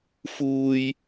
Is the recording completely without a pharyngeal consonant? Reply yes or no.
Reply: yes